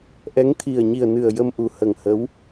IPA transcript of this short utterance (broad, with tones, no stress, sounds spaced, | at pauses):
ʔ ɛ˧˥ ŋ t̪ʰ i˨˩ ə̯ ɲ i˨˩ ə̯ n ɨ˨˩ ə̯ j ə˧ m ʔ u˨˩ h ə˨˩ ŋ h ə˧˥ w